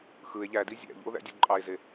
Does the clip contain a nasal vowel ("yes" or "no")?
no